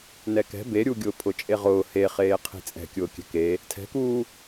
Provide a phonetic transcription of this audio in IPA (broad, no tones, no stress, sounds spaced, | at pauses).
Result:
n ɛ k ɛ̤ b e ɾʲ u ɡʲ ʊː pʰ ʊ t͡ʃʼ e ʁ ʊː h e χ eː qʰ i̤ t͡sʼ ɛ̤ kʲ ʊː kʲ ɛ̤ k e | tʰ ɛ̤ k uː